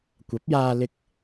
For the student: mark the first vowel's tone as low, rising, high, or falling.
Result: rising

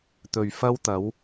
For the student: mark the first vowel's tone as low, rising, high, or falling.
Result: low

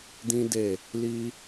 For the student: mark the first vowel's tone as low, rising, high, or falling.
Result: high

